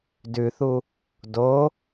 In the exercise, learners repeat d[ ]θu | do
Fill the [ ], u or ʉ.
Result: ʉ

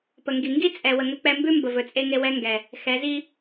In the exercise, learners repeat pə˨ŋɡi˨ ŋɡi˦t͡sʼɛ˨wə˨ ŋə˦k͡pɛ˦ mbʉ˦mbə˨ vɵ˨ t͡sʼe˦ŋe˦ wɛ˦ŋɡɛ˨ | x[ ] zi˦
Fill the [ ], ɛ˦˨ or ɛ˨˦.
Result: ɛ˨˦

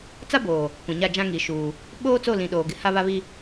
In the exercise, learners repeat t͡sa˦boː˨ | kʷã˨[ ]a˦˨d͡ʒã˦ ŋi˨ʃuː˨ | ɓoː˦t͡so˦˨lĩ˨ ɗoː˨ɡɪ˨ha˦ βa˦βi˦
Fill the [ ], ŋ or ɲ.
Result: ɲ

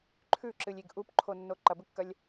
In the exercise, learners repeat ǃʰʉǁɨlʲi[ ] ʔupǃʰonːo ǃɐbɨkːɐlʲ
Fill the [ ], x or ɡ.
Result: ɡ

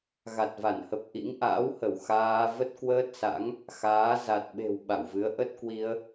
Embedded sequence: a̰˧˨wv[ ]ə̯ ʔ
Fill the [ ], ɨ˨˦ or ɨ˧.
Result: ɨ˨˦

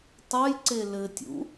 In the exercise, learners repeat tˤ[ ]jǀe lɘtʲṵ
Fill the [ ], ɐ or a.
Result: ɐ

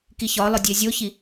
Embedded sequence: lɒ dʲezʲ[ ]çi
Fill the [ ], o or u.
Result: o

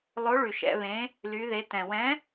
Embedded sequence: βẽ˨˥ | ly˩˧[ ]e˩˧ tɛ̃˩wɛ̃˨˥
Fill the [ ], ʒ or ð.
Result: ð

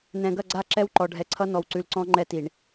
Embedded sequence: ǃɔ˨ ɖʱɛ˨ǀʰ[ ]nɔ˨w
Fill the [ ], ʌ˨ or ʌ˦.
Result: ʌ˦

